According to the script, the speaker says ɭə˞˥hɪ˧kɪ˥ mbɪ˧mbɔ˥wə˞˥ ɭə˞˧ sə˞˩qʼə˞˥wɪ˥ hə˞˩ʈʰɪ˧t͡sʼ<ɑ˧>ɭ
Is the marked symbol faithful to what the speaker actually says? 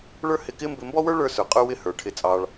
yes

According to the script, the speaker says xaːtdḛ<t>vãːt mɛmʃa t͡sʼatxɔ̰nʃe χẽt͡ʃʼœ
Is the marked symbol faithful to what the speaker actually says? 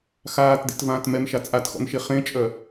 yes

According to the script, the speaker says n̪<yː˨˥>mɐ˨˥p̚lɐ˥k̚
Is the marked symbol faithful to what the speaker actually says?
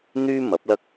no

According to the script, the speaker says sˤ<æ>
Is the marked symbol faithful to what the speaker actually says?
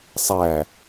yes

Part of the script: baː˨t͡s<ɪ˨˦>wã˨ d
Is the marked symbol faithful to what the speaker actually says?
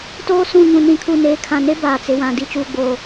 no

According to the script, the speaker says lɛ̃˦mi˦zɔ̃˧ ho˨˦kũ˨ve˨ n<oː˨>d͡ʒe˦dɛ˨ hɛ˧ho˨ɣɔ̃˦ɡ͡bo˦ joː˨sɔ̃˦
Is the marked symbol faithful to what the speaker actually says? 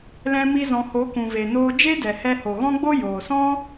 no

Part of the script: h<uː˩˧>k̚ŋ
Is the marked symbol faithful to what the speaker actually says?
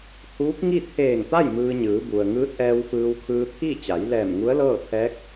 no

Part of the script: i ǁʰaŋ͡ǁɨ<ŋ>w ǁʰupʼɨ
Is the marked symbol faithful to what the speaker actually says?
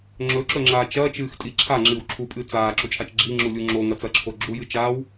no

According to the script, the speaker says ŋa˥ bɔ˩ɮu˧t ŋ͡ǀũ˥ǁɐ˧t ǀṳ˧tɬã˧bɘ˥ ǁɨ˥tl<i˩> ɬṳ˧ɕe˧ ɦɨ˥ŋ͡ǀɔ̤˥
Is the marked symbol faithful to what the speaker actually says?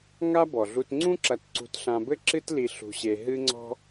no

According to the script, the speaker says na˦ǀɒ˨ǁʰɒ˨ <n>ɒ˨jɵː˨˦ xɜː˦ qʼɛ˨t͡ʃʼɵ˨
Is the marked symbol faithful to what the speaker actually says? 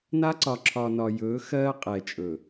yes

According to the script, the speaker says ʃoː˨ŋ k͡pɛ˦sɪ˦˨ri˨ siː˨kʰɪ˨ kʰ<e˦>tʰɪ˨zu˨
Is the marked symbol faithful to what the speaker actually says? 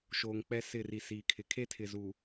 yes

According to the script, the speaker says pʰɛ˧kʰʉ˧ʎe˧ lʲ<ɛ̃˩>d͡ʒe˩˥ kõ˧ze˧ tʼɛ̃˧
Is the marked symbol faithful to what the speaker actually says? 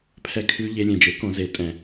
no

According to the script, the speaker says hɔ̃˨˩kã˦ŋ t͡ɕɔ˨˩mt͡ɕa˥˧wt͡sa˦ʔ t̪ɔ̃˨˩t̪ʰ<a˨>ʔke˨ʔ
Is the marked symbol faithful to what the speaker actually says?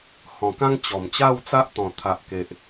yes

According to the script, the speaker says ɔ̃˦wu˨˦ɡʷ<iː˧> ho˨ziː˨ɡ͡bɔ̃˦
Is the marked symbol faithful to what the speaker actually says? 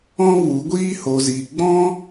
no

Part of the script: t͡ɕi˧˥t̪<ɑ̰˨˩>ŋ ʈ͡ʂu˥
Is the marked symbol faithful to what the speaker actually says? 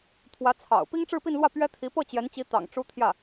yes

